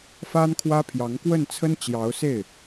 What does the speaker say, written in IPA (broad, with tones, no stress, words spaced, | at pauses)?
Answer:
fa˥nkʰwä˥pʰjɑ˧˥ŋ kwə˥˩n t͡sʰə˥nt͡ɕjɑ˧˥ʊ̯se˥˩ɪ̯